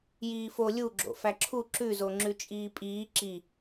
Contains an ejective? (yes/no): yes